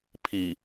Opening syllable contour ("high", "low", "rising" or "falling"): low